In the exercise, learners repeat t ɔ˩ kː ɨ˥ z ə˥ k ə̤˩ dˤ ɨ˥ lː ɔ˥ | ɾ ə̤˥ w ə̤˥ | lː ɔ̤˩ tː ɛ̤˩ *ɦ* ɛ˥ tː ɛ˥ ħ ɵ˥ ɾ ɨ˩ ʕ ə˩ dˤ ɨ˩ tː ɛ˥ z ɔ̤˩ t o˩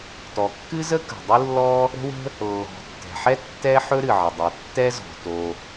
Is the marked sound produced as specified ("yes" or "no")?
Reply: no